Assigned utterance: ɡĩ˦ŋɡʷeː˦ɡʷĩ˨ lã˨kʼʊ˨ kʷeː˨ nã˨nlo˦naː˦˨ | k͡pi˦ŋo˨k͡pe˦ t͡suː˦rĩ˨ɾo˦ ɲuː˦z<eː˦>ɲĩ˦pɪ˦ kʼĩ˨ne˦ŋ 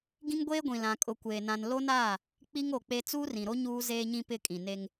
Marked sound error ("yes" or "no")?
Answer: no